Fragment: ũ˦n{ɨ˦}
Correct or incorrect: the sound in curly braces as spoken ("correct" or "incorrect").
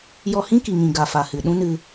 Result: incorrect